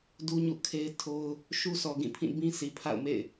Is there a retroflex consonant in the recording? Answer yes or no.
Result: no